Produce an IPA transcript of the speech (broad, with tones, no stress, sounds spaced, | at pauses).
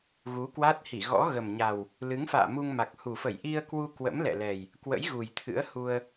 ɣ u˨˦ k w a˦˥ t̚ h i˧˩ ɣ ɔ̰˧˥ ɣ ə˨˩ m ɲ a˨˩ w | l ɨ˨˦ ŋ f a̰ː˧˨ m u˧ ŋ m a˨˩ k̚ h u˨˩ f ə˧˩ j ʔ i˧ ə̯ k w u˧ k w ə̰˧˥ m l ɛ̰˧˨ l ɛ˨˩ j | k w ə̰˧˥ j ɣ u˨˩ j t̪ʰ ɨ̰˧˥ ə̯ h u˧ ə̯